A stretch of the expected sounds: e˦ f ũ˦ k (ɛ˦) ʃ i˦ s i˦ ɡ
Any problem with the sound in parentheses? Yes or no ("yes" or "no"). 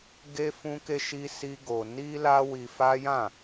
yes